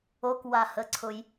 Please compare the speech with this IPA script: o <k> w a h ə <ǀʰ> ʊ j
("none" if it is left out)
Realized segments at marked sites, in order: k, ǀʰ

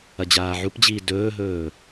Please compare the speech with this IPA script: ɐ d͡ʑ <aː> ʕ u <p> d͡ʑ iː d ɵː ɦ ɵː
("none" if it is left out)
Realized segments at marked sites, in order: aː, p

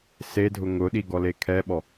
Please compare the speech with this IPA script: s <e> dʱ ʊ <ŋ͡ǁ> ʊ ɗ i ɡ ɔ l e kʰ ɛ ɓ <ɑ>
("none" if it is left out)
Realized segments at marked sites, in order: e, ŋ, ɔ

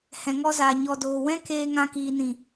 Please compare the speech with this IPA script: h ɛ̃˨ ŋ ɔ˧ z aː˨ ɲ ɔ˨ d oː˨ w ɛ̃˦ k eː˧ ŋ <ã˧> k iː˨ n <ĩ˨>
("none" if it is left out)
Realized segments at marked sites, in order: ã˧, ĩ˨

